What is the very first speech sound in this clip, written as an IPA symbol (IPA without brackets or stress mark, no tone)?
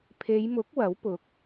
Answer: pʰ